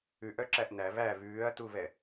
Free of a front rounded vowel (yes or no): no